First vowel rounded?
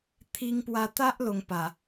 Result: no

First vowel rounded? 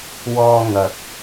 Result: yes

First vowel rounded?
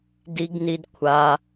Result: no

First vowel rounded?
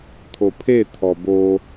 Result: yes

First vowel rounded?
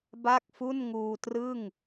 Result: no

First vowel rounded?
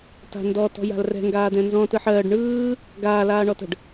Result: no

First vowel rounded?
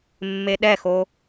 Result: no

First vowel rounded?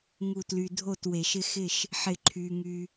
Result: yes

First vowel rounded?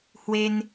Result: no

